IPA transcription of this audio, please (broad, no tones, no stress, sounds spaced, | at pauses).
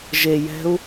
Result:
ʒ e j ɛ̤ u̯